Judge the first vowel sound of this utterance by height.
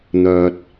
mid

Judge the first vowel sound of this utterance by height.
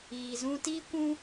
high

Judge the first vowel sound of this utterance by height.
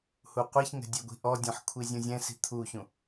high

